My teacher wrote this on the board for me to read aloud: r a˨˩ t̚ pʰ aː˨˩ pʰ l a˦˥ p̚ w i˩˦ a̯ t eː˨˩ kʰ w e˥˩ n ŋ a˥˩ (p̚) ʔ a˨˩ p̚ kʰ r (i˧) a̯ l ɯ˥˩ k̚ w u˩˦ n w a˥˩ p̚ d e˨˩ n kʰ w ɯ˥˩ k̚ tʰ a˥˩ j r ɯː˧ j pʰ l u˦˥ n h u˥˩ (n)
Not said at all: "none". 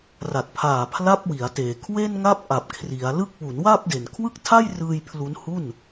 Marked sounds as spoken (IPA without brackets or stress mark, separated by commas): p̚, i˩˦, n